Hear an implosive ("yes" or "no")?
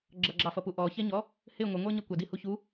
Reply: no